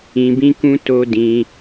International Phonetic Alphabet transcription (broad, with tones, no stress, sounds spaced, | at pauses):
ĩ˧ b ĩ˦ k ũ˦ t o˦ d ĩ˧